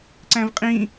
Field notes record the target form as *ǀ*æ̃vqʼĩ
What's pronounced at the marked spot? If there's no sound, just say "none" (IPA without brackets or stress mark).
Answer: ǀ